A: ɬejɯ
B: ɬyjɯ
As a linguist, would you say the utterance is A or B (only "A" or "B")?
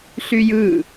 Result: B